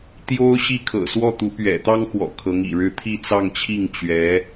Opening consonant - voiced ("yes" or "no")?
no